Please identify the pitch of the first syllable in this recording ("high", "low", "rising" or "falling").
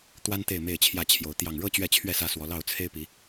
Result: high